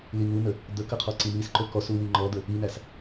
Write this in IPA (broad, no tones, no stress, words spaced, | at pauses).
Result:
liŋunə | d̪əkə qʰɔǀimisǃɵ kɔsu wiŋ͡ǃɔd̪ə | inæs